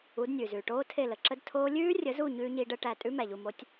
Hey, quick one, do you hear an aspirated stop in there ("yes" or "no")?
yes